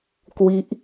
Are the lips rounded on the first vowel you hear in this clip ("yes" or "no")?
no